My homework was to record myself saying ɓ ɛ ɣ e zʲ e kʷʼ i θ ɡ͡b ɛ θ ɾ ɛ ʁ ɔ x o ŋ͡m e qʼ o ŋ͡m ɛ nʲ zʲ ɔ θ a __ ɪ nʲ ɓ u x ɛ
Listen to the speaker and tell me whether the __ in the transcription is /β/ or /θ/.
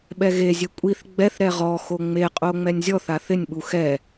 θ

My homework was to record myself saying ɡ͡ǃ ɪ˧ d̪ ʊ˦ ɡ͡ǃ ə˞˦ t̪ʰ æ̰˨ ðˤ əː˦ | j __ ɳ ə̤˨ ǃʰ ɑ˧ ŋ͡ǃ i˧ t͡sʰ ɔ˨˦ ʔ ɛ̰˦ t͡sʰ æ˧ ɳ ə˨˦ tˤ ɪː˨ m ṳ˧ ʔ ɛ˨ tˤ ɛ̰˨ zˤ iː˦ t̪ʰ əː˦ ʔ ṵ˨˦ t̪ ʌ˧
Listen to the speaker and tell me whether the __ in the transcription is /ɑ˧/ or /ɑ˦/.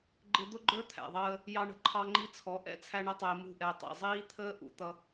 ɑ˧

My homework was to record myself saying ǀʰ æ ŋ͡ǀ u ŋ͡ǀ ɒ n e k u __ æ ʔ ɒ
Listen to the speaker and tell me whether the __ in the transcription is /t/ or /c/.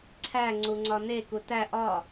t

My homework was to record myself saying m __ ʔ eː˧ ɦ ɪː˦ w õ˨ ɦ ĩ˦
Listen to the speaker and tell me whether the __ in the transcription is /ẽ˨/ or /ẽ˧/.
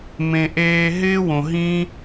ẽ˨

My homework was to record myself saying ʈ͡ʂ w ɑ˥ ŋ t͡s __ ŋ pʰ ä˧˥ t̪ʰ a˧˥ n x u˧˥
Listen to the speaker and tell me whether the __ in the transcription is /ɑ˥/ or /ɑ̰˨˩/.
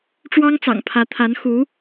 ɑ̰˨˩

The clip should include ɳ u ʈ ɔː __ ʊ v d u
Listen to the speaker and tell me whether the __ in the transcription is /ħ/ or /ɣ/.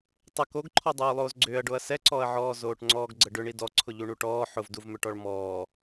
ħ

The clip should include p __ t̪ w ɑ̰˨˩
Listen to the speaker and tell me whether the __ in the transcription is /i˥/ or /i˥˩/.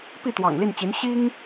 i˥˩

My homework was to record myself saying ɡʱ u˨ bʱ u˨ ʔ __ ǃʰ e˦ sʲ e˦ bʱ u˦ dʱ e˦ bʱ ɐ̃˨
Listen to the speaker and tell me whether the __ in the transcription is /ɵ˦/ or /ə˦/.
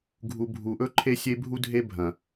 ɵ˦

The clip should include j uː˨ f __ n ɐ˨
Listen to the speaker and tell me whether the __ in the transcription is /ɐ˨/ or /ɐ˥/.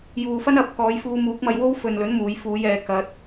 ɐ˥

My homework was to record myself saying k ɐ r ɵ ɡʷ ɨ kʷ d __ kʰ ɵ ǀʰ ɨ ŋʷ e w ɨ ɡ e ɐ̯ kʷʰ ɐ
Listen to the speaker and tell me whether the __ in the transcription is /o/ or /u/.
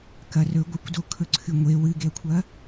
o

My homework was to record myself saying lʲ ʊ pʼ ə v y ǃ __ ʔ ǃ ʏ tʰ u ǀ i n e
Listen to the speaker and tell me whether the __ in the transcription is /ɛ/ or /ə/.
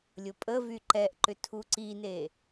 ɛ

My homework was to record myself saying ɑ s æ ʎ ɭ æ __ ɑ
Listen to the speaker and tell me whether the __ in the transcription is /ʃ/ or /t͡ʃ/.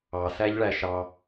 ʃ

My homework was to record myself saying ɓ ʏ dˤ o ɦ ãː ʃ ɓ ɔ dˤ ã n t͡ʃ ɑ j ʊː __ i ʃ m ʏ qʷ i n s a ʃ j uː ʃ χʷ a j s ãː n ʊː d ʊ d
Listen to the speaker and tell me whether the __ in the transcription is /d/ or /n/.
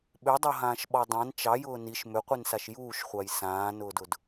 n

